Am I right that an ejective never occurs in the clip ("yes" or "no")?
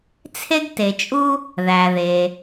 no